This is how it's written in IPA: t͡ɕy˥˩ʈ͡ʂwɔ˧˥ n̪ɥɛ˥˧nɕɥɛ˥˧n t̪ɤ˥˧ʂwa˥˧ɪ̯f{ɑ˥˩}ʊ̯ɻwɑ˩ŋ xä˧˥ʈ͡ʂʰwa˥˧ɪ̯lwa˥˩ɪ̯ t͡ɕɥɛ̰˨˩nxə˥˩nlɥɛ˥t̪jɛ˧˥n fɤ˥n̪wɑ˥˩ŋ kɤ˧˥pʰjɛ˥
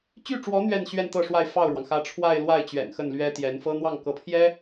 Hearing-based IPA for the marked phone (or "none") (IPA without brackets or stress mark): ɑ˥˩